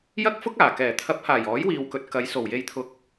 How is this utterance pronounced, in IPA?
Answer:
jɐ˥k̚fʊ˥k̚aː˨˩ kɛː˨˩t̪ʰɐ˨˥p̚haː˨˩j ɔː˨˥jwiː˨wkɵ˨t̚ kɐ˨˧j so˨˩wje˨jt̪ʰʊ˨˥k̚

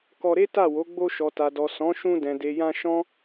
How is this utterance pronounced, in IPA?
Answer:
kɔ˧ɾe˦ta˦˨wo˨˦ ɡ͡bo˧ʃɔ˨ta˨dɔ˨ sɔ̃˨˦ʃũ˧dɛ̃˨ de˨jã˧ ʃɔ̃˦

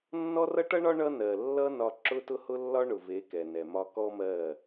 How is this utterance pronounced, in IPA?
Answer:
nːɔ˦rʌ˦ʈʌ˦ɳɒ˦ ɳʌ˦nɜ˨ lːʌ˦ nɒ˦ ǁʊ˦tʊ˦hʊ˦lːɒ˦ ɳʊ˨ve˨˦ kɛ˨nɛ˨mɒ˦ kɔ˦mɜ˦˨

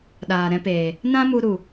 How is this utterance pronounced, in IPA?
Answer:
ɗaː˨ɾɛ̃˦peː˨ | nã˦mu˧ɾu˨

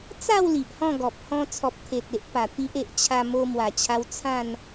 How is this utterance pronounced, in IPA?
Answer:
t͡sa˥˧w li˨ʔhɔ̃˥˧ɡɔ˨p̚ hɔ̃˧t͡sʰɔ˨p̚t̪ʰe˨t̚ e˦ʔpa˨˩t̪i˦ʔ e˨ʔt͡ɕʰa˧ mo˧mwa˨˩t͡ɕʰa˧w t͡sʰã˥˧n

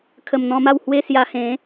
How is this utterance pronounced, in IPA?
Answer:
kʰə˨˩mn̪ɔ̃˧ma˥˧w hwe˥˧sja˧hẽ˨˦

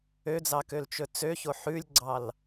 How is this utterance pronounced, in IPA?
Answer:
ød͡zɑ kølt͡ʃɵt͡søço ħʉlʲɡ͡ǀɑl

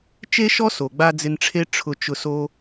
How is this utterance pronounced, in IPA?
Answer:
t͡ʃe˥ʃɔ˥so˩ɡ͡ba˧ d͡zɪ˧nʈ͡ʂʰe˥ ʈ͡ʂʰʊ˧t͡ʃʊ˧ so˥

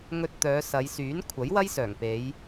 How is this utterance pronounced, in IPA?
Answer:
ŋɵ˧t̚t̪œː˨˧ sɐ˨˧jsyː˨˥n kʷʰɐ˨˥jwɐ˥jsœː˨˩ŋ pe˨˧j

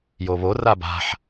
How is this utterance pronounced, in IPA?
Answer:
joβo raba̤ħ

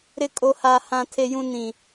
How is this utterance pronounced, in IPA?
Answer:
ɾɪ˦kʼo˦ haː˦hã˦tʰe˦jũ˦ nĩ˦

